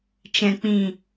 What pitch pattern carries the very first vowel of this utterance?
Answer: low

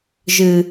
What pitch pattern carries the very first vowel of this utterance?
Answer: low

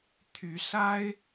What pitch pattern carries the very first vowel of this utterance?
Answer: rising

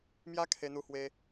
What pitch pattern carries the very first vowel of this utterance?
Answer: high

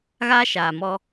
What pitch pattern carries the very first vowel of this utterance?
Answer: high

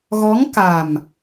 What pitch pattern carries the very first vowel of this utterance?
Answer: rising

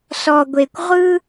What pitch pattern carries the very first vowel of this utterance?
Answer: low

